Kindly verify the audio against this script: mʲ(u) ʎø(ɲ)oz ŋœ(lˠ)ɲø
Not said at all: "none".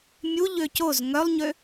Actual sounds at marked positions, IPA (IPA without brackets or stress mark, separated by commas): u, c, lˠ